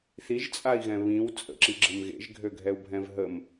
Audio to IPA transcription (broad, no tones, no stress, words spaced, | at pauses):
θiʒt͡sʼai̯ɣɛ̃ βĩw t͡sʼə̰ǁiɡ͡ǁəm ɣḛʒɡʱøɡʱɛu̯bʱɛ̃v ɦəm